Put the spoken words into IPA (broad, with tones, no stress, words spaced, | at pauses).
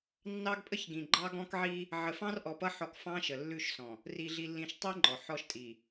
nːɑ˦ɡpʼə˦çɡĩ˨ ɡ͡ǃɑ˦ɡɔ̃˦kʕi˦ | ʕə˨fɑ̃˦rʔɔ˨pʌ˦ ħɔ˦k fɑ̃˦ʃə˨lːʉ˦˨ʃsɔ̃˨ | ri˨ɮi˨lːĩ˨ʃ tˤi˦ ŋ͡ǃɔ˨ħɔ˦ʃtʼi˨